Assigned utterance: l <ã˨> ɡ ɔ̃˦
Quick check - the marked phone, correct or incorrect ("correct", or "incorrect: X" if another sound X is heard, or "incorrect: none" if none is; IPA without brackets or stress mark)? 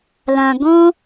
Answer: correct